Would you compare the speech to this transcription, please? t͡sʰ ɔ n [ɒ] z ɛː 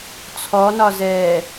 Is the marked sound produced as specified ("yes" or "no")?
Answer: yes